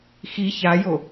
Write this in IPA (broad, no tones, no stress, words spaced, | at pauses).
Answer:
xi çajo